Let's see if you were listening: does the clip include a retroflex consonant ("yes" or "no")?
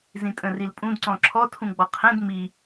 no